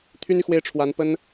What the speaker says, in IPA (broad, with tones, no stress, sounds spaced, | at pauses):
t̪ʰ y˥ n y˨ x w e˥ ɪ̯ ʈ͡ʂʰ w a˧˥ n p ə˥ n